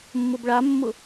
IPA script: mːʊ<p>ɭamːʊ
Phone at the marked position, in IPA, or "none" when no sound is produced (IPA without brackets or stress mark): b